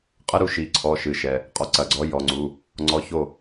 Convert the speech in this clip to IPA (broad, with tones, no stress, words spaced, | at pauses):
qʼə˧˥˧ɾu˨˥ ʃi˩˧˩ǀʰɔ˩˧˩ ʃɨ˩ʃɛ˩ | qʼɔ˨˥ǀɐ˩˧˩ɡ͡ǀɔ˨˥ jɔ˩˧˩ŋ͡ǀu˩˧˩ | ŋ͡ǀɔ˧˥˧ ço˥˩